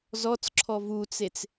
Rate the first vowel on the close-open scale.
mid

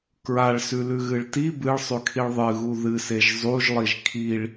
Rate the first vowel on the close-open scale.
open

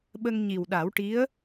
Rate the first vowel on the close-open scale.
mid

